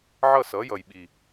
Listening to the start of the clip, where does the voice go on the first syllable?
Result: falling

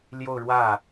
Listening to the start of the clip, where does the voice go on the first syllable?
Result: falling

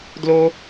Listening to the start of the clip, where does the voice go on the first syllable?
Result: high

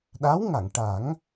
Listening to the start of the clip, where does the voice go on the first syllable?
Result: rising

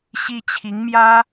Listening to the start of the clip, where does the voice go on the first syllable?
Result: high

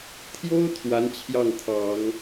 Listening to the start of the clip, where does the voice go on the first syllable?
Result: high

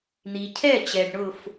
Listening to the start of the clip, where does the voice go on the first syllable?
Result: low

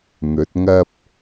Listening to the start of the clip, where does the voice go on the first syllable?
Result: rising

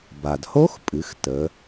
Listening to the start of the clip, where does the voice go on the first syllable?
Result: low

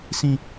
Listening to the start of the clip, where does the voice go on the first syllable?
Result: high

